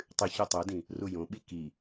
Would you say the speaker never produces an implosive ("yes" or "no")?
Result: no